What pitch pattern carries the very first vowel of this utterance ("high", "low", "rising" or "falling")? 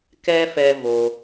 high